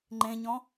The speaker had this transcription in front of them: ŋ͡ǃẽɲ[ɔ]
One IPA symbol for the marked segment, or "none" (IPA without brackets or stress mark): ɔ̃